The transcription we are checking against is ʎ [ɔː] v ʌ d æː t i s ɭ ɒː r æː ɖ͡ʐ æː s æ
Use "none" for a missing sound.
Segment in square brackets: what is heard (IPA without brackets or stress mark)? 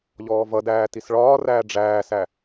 ɔː